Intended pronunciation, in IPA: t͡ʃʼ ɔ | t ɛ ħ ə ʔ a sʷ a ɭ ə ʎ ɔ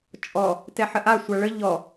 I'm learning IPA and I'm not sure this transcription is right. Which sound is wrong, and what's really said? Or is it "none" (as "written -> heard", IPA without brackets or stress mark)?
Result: none